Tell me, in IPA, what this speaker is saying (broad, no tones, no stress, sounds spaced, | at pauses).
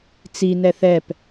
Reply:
t͡s i n ɛ θ ɛ p